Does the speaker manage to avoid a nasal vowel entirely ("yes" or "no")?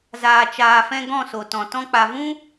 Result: no